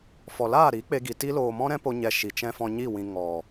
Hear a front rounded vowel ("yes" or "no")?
no